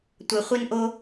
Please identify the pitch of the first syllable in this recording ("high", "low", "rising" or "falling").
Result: low